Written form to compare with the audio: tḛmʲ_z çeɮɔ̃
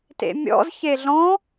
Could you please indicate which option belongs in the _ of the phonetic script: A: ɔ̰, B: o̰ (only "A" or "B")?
A